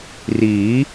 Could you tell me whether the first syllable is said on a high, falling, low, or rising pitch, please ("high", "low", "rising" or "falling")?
rising